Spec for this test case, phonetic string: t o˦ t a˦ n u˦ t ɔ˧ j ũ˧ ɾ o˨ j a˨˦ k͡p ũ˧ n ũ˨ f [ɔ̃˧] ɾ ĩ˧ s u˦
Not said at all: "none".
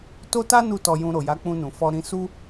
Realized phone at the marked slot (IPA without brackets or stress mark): ɔ˧